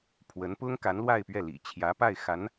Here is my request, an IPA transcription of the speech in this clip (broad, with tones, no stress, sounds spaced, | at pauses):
pʰ w ə˧˥ n p ʊ˥ ŋ k a˧˥ n l w a˥˧ ɪ̯ p ɥ ɛ˥˩ l ḭ˨˩ t͡ɕʰ j ä˧˥ p a˥˩ ɪ̯ x a˧˥ n